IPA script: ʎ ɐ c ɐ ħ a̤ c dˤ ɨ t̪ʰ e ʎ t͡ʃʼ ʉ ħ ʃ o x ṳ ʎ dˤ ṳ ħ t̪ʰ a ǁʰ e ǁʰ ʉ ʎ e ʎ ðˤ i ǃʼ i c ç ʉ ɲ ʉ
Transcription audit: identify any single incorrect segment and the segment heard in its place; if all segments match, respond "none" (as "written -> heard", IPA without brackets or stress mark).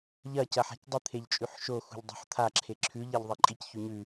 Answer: none